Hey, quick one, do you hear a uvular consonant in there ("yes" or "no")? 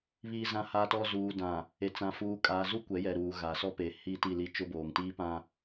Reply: no